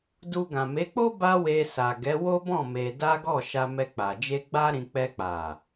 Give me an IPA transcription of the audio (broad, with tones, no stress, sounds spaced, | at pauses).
d u˧ ɡ ã˨ m e˨˦ k͡p o˦ b a˦ w e˧ s a˨ ɡ ɛ˨˦ w o˦ b ɔ̃˦˨ m e˧ d a˦ ɡ ɔ˦˨ ʃ a˧ m ɛ˧ k͡p a˨ d͡ʒ e˧ ɡ͡b a˦ ɾ ĩ˧ k͡p ɛ˧ k͡p a˨